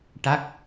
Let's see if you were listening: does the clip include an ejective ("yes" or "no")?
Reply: no